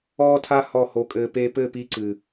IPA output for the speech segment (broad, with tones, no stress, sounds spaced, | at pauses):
ɔː˦ tʰ a˦ h ɔ˦˨ h o˧ kʼ ɘː˧ p e˧ p ɘ˦˨ p i˧ ǀ ɨː˨